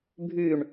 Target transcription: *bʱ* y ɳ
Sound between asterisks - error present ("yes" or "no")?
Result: no